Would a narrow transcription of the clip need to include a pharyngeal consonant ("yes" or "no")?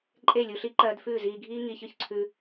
no